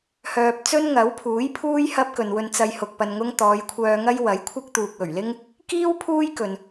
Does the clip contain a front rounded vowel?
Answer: yes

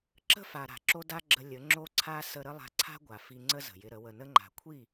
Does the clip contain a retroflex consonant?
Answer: no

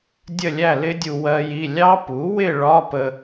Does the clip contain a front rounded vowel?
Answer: no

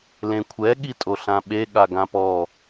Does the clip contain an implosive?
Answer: yes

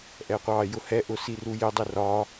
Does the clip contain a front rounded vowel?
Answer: no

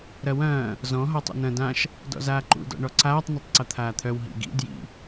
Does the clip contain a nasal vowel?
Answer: yes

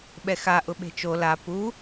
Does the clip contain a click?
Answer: no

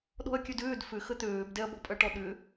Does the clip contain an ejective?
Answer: yes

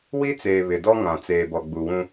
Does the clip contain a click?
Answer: no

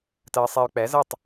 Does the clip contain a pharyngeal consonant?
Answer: no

